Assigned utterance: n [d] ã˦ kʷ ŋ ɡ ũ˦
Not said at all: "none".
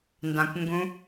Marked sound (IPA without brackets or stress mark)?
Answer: d